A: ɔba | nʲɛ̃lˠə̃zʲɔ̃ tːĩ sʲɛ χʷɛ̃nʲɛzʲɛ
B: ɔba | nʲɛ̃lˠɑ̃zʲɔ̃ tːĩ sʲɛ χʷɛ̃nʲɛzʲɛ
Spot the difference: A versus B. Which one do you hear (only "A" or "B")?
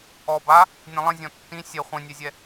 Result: A